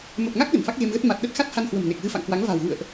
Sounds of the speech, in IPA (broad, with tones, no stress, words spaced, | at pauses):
mə˨˩p̚ŋa˦˥k̚ ɗə̤˨˩nfa˦˥k̚ɣe˧mɣə˦˥t̚ ma˨˩t̚ɗə˦˥t̚ xa˦˥t̚ha˧nhwə̤˨˩m ne˨˩k̚ɣɨ˧fa̰˧˨ŋkwa˨˦ŋ va̤˨˩wɣṵ˧˨ə̯ʔ